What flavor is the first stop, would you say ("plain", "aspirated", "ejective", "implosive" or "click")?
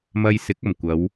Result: plain